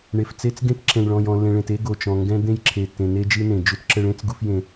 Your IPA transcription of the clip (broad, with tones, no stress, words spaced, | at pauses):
ɳe˨ft͡se˦t͡sɡẽ˦t ǁẽ˨ɳɭɔ̃˨j ɔ̃˨lːẽ˨ɭẽ˨t e˦ɡo˨t͡ʃɔ̃˨ ŋɡɛ̃˦d̪ẽ˦j ǁʰe˨tːẽ˨ne˦ d͡ʒɨ˦nẽ˨ d͡ʒu˦tǁɘ˦ɭ ẽ˦t͡sɡu˦f jẽ˦